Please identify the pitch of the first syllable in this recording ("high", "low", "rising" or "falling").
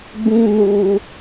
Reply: high